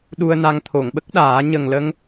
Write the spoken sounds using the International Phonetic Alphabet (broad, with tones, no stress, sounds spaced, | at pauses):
ɗ u˧ ə̯ n a˧ ŋ t̪ʰ o˨˩˨ ŋ ɓ ə˦˥ k̚ ɗ aː˨˩˦ ɲ ə˨˩ ŋ l ə˧ ŋ